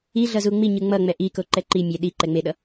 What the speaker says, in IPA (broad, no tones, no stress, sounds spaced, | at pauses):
i ɮ ʌ z u ŋ͡m i ɲ ɯ ŋ͡m ʌ ŋ͡m ɛ ʔ i k o ǃ ɛ ǃ i mʲ ɛ ɗ i ǃ ɛ ŋ͡m e ɗ ʌ